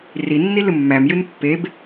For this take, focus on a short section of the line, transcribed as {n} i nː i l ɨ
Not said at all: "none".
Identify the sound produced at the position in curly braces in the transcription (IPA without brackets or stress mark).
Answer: r